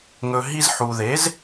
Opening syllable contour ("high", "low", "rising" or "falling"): low